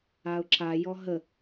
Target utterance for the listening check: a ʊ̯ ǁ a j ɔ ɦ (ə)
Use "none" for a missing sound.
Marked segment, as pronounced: ə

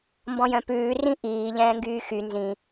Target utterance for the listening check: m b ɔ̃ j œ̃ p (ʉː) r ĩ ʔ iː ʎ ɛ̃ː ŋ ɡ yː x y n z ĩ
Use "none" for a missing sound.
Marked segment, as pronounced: ʉː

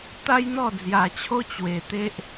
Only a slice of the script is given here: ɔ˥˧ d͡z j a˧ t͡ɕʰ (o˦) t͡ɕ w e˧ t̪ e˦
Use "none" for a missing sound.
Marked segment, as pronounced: o˦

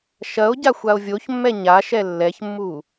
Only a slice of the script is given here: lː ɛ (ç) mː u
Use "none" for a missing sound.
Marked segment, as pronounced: ç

